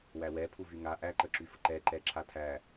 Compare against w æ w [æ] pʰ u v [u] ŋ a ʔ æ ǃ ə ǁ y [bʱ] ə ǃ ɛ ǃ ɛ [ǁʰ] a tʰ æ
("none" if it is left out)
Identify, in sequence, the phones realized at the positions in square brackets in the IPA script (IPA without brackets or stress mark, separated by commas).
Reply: ɛ, y, f, ǁʰ